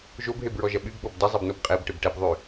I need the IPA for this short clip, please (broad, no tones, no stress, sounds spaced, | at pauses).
ʒ o b ɦ e b ɹ ɔ ʒ ɐ ɓ y b ɓ ɔ b d ɐ zˤ e b n o b qʼ ɛ b ʈ ɪ b ʈ ɛ b ðˤ y